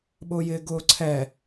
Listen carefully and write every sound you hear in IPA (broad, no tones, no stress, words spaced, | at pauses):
ɓʊːjɪːɡʊːǀʰɛ